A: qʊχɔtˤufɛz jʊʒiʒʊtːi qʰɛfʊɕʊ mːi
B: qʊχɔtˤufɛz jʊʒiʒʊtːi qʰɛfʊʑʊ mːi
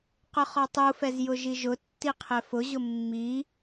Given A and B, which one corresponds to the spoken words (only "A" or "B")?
B